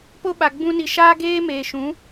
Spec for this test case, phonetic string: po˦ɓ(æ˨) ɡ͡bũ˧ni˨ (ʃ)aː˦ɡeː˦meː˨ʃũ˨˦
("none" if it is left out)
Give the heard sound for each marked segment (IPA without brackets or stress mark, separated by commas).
a˨, ʃ